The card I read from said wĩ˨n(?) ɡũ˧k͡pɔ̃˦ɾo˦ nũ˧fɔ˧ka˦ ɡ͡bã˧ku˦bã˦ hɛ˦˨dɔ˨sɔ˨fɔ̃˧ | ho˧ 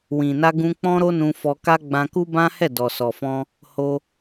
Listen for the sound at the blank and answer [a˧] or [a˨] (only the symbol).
a˧